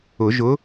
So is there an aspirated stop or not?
no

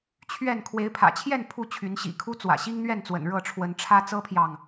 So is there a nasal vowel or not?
no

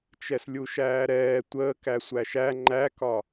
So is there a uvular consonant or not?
no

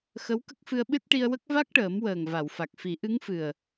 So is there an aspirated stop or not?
no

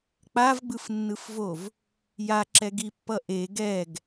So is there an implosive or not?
no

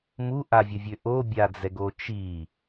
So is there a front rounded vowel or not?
yes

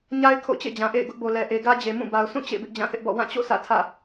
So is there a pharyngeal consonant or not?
no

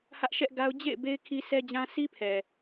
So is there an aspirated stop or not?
yes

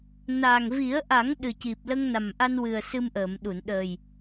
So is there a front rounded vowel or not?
no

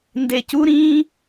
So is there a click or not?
no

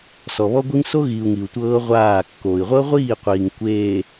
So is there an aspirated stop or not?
no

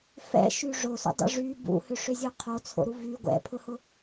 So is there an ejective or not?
no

